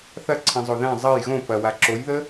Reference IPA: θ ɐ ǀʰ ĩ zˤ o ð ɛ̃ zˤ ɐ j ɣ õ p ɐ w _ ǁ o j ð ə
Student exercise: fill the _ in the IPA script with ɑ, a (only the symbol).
a